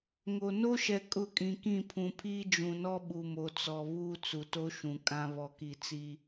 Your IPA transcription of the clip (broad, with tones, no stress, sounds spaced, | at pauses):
ŋ o˨ n o˦ ʃ ɛ˨ kʼ ʊ˦˨ kʼ ĩ˨ k ĩ˦˨ pʰ ũ˨ pʰ iː˦ d͡ʒ ũ˨ n ɔ˦ ɓ u˨ m o˨ t͡s ɔ˨ β uː˦ t͡s u˨ t o˦ ʃ ũ˨ kʼ ã˦ β ɔ˨ k i˨ t͡s i˦